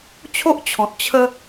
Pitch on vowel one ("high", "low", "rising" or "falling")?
high